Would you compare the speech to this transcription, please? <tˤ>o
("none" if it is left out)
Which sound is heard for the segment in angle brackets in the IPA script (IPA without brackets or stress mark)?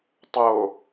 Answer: tˤ